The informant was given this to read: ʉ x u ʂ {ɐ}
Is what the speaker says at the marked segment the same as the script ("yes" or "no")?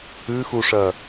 yes